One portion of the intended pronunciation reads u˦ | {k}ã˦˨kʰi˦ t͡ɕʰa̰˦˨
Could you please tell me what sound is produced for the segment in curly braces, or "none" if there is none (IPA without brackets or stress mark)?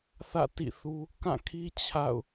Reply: k